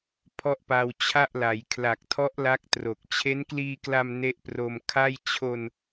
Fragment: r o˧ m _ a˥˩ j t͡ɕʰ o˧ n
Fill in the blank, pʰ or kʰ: kʰ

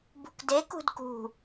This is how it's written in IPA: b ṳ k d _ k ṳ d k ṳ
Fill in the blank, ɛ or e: e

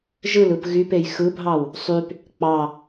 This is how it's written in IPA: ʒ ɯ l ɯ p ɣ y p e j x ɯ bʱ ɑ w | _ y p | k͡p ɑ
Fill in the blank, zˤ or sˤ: sˤ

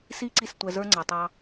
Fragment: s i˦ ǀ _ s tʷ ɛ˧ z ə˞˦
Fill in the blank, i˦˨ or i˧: i˦˨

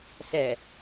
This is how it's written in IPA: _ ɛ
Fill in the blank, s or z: s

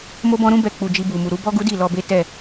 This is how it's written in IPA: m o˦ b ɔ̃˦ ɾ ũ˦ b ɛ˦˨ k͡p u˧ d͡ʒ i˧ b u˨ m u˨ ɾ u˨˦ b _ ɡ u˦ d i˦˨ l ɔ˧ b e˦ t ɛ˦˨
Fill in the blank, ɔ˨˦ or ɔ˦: ɔ˦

